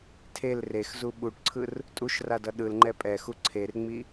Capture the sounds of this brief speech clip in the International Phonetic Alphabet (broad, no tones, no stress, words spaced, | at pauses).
tʰel rexzu ɓuʈǀʰɯr | tʼuʃradʌ ɗɯlŋ͡ǃɛ pʼɛxu ǀʰerŋ͡mi